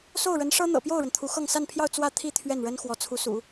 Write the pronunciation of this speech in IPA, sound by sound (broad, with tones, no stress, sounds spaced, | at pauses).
s o˥˩ ʊ̯ ɻ ə˧˥ n ʂ ɤ˥ n̪ ɤ̰˨˩ p j o˥˩ ʊ̯ ɻ ə˩ n t̪ʰ u˧˥ x ɤ˥˧ ŋ s a˥˧ n pʰ j ɑ˥˧ ʊ̯ t͡s w ä˥˧ t̪ʰ i˥˧ t̪ʰ ɥ ɛ˥˩ n ɻ ə˥ n x w ɔ˧˥ t͡sʰ u˧˥ s ṵ˨˩˦